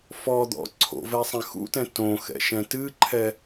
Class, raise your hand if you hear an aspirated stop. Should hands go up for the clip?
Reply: yes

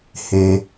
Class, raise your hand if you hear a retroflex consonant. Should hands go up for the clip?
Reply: no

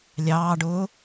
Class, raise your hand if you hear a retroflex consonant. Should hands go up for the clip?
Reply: yes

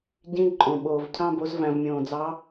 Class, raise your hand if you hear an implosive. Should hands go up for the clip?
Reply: yes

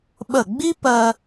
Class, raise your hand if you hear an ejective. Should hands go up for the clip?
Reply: no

